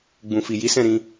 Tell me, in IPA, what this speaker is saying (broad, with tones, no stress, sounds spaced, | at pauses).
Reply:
ɡ͡b ũ˨ f i˨ j i˨˦ s ɛ̃˦˨ ɾ ĩ˧